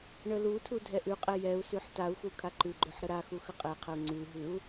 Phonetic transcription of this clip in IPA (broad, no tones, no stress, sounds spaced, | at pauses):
ɳ ə l u tʰ u dʱ ɛ ʔ ʉ qʼ ɛ j ɛ u̯ s ʉ ħ t a u̯ x u kʰ a ǃ ʉ ɡ͡ǃ ø ħ ɾ ə ɾ a x u x ə qʼ ɛ qʰ ə u̯ ŋ͡ǀ ʉ ɦ ʉ u̯